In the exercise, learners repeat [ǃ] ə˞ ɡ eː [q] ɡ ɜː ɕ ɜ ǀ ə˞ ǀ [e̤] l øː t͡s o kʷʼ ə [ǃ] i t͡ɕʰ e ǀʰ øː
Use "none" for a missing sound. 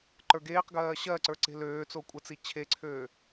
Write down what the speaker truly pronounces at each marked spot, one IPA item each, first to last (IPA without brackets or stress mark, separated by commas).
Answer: ǃ, q, e̤, t͡s